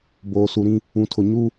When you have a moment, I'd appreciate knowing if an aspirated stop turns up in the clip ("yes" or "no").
yes